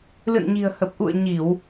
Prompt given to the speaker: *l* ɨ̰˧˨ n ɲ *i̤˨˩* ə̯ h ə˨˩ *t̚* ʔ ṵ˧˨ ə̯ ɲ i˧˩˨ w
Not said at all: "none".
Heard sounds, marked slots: l, i̤˨˩, p̚

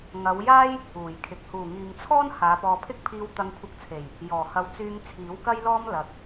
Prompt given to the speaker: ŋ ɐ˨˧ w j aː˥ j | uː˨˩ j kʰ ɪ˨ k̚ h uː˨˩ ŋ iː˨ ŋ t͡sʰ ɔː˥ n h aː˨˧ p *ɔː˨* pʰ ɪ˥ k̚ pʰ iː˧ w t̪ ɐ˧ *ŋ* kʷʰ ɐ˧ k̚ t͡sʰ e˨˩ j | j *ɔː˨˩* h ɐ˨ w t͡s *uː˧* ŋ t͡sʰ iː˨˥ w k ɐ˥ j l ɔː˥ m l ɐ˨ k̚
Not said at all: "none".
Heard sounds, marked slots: ɔː˨, ŋ, ɔː˨˩, yː˧

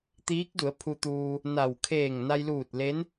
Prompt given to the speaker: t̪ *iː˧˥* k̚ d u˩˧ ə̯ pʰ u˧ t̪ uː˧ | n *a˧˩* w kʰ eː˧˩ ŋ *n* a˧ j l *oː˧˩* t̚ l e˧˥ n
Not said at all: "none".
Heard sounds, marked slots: iː˧˥, a˧˩, n, uː˧˩

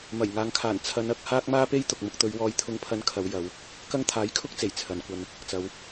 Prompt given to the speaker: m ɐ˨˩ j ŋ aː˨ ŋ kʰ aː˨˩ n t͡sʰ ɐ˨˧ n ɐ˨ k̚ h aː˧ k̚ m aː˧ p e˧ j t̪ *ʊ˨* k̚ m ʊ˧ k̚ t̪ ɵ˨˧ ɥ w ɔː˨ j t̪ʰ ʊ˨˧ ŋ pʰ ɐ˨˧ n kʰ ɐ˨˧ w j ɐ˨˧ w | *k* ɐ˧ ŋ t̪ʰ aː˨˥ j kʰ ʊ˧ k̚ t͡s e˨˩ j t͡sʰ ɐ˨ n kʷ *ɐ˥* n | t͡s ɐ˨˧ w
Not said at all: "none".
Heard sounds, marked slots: ʊ˨, k, ɐ˧

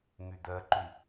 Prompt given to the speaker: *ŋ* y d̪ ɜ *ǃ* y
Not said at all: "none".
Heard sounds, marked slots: ŋ, ǃ

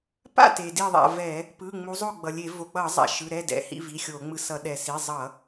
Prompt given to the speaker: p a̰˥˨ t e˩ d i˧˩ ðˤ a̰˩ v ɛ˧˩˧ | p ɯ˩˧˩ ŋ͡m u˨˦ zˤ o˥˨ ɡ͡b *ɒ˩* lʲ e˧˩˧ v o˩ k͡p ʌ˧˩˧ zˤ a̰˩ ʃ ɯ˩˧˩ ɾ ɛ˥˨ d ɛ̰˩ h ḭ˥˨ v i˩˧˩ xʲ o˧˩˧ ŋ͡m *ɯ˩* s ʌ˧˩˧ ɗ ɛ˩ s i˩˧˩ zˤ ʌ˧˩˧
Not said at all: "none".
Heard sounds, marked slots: ʌ˩, ɯ˧˩

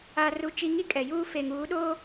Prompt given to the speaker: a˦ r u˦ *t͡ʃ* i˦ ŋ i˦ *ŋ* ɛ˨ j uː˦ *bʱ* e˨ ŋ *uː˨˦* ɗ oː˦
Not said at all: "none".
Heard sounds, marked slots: t͡ʃ, kʼ, f, uː˨˦

